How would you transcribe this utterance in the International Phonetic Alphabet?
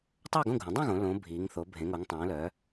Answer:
tˤœː˥˨ɡõ˥˨ɡʱũ˩˧ dˤũ˥˨ɣõ˩˧ lõ˩˧ bʱiː˩˧ŋ θo˩˧bʱẽ˩˧ŋo˩˧ŋ tˤõː˩˧lœː˩˧

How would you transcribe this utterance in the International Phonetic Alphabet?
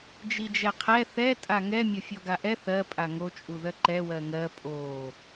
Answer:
d͡ʒid͡ʒɛqʰɛ θɛ tʼaŋɛ mʲofʲɔɡaʔɛ θɜ pʼaŋo t͡ʃʼuðɜǃɛ wɜŋɜ pʼo

